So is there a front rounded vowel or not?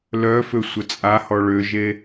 yes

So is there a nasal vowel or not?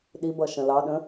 yes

